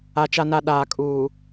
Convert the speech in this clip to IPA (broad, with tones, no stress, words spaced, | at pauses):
a˨t͡ʃa˨na˨ ɗaː˨kʼuː˨